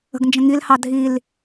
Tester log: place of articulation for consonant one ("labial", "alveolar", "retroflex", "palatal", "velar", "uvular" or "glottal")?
velar